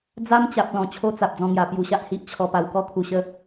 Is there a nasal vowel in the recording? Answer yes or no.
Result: yes